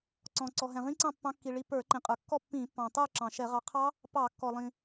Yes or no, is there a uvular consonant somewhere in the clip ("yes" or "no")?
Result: yes